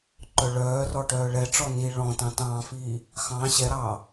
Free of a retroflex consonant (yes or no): no